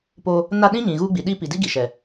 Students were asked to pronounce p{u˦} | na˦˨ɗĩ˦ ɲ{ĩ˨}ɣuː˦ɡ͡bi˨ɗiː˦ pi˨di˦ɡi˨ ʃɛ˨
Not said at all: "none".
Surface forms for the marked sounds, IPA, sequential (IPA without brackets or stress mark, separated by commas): o˦, ĩ˨